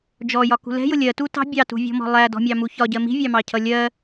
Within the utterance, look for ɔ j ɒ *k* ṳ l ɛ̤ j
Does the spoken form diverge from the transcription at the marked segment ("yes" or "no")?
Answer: no